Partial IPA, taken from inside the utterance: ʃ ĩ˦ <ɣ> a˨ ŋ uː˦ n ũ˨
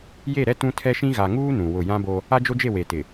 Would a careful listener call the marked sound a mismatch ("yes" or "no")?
no